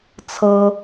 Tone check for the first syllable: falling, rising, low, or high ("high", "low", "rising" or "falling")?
high